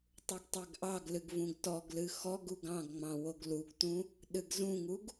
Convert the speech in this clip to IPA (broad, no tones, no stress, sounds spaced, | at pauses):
tˤ u ɡ tˤ ɛ ɡ ʔ ɑ ɡ l ɨ ɡ v ũ ɡ t ɔ ɡ l ɨ x ɔ ɡ u ɡ ɑ̃ ɡ ŋ͡m ɑ̃ w o ɡ l u ɡ t ũ | ɗ ɨ ɡ z ũ ŋ u ɡ